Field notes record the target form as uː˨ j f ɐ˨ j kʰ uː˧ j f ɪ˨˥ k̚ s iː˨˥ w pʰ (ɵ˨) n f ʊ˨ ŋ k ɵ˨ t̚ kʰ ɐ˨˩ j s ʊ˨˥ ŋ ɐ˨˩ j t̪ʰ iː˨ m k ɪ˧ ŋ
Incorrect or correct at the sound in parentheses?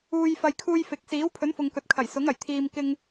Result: incorrect: ɵ˨˥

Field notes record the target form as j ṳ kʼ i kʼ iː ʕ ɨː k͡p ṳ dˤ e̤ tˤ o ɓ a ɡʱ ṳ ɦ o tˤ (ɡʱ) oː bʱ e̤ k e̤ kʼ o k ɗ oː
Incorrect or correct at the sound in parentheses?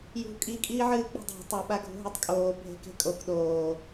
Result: incorrect: kʼ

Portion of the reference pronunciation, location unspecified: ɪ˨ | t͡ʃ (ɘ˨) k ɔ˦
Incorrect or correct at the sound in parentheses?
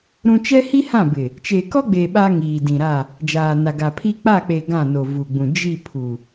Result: incorrect: e˨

